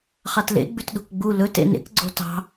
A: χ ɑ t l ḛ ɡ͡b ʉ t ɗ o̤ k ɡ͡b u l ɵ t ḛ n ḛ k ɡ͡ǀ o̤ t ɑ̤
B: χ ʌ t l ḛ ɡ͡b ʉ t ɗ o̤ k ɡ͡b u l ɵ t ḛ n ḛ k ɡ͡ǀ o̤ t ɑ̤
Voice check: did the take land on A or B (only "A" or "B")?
A